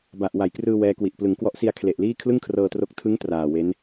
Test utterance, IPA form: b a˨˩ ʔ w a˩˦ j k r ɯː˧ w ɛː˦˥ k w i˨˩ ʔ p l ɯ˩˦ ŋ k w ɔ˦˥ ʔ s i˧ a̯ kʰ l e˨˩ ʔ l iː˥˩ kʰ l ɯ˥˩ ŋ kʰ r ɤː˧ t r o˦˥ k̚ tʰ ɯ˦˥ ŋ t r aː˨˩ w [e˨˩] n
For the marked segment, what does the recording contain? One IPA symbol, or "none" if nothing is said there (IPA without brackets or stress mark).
e˦˥